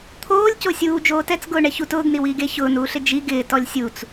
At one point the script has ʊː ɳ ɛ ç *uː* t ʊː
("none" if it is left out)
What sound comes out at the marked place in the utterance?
u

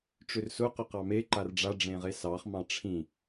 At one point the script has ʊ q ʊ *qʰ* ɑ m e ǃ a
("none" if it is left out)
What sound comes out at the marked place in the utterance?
q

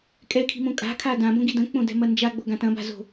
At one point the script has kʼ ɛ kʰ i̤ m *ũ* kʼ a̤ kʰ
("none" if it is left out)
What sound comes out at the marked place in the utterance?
õ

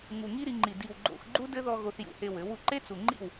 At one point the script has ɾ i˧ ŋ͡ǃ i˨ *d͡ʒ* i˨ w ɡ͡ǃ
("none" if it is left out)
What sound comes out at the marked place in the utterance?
d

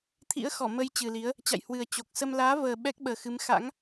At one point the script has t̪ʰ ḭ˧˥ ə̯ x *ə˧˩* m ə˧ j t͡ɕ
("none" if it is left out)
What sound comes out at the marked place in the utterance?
ɔ˧˩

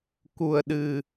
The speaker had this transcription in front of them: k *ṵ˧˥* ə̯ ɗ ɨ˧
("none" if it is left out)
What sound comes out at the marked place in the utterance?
u˧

